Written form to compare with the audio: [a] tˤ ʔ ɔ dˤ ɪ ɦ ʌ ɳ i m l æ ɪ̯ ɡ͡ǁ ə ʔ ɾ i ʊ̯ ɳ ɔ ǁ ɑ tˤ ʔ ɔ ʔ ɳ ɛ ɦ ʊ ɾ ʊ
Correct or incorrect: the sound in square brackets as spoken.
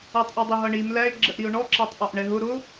incorrect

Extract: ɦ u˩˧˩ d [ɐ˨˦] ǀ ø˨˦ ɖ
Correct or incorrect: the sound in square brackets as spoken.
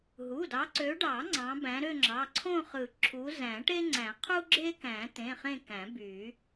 incorrect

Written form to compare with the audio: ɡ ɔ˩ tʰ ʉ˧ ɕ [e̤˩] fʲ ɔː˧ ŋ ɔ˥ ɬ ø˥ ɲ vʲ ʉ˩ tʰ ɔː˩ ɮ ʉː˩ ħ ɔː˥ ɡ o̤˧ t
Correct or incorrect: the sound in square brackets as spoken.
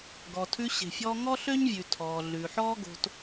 correct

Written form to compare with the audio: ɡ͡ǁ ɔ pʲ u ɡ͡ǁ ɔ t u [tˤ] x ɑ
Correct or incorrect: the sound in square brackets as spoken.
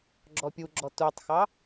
correct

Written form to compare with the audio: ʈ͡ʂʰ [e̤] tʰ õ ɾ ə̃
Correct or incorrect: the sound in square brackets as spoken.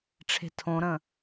correct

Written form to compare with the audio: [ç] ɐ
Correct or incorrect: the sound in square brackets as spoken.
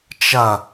incorrect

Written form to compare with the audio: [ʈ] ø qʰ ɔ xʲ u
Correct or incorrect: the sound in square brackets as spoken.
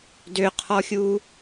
incorrect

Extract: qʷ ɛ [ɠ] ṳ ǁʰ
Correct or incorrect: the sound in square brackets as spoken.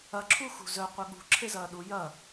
correct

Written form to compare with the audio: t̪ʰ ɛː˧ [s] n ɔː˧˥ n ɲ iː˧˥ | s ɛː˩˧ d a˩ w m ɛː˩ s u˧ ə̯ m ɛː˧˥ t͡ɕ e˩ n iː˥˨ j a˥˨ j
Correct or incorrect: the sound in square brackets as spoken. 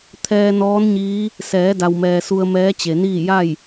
incorrect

